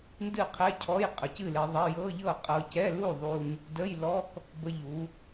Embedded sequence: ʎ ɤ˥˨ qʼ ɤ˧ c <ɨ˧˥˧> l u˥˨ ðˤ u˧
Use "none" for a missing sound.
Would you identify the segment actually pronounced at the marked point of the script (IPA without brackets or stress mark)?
ɛ˧˥˧